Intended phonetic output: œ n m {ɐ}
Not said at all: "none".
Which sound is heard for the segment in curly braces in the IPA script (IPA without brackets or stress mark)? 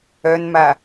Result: a